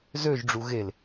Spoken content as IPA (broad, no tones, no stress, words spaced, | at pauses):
zøʒɖ͡ʐu ɣel